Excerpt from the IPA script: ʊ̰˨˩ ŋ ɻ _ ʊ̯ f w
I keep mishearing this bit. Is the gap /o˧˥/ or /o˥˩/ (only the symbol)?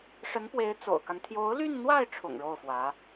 o˥˩